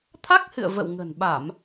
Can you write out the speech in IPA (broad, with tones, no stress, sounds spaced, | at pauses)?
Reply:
t̪ʰ a˦˥ k̚ h ɨ̰˧˨ ə̯ v ə̰˧˨ w ŋ ə̤˨˩ n ɓ a˧˩˨ m